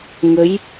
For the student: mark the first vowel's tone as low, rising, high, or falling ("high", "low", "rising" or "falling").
rising